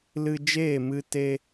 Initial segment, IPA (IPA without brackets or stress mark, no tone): l